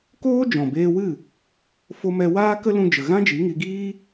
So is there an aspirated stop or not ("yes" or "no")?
no